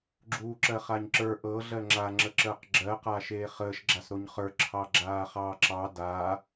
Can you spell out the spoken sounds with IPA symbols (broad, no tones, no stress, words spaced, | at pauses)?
ɡ͡ǁuːǁɜχaɲǁə˞ ʔɤ ɮɜŋ͡ǁa ŋ͡ǁəǁəːqɡ͡ǁɜ qaʃeːχəːʃ ɡ͡ǁasɾoɲχə˞ ǁʰɑɡ͡ǁaːχɑːǁɑ da